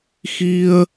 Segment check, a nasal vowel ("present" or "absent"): absent